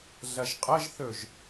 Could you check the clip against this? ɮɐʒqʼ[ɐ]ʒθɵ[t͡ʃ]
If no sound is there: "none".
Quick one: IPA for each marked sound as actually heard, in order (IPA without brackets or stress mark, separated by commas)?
ɐ, ʒ